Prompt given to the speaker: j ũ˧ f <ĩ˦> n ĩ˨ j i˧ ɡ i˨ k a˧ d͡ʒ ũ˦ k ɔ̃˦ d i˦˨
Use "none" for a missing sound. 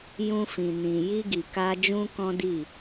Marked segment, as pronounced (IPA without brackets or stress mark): ĩ˨